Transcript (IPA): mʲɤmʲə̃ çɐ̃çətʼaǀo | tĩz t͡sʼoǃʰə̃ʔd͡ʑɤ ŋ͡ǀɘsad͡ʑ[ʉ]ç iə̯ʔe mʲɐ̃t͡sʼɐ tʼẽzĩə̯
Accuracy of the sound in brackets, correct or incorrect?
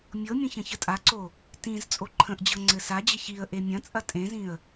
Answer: incorrect: ɘ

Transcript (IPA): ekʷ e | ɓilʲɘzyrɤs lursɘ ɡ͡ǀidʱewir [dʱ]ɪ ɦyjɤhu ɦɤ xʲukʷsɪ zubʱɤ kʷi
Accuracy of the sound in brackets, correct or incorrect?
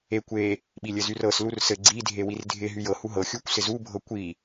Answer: correct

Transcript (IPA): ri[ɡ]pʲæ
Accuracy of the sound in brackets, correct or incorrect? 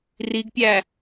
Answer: correct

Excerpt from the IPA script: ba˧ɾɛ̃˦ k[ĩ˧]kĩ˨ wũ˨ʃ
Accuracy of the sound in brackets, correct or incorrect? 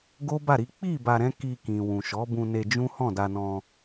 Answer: incorrect: i˧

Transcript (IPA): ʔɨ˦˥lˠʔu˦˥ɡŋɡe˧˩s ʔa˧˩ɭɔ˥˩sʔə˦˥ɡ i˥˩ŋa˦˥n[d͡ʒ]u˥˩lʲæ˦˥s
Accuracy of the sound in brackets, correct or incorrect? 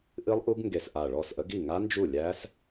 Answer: correct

